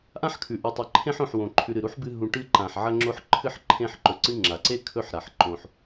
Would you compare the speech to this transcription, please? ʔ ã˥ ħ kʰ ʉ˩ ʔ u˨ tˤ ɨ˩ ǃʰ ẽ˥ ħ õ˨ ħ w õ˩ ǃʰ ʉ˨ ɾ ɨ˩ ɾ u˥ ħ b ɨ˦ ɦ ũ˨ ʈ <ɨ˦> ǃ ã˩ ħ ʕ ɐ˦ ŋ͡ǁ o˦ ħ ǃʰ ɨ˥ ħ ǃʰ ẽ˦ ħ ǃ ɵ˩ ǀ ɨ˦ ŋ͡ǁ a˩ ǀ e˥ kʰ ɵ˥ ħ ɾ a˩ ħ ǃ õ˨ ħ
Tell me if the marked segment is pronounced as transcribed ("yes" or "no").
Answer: yes